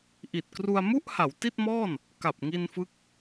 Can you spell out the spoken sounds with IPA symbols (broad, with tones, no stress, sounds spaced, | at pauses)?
ʔ i˨˩ t̚ k r u˧ a̯ m u˥˩ ʔ h a˩˦ w t i˥˩ t̚ m ɔː˥˩ n | k a˨˩ p̚ ŋ i˧ n f ɯ˦˥ k̚